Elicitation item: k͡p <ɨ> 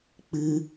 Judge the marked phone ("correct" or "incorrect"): correct